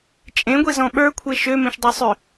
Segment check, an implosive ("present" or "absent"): present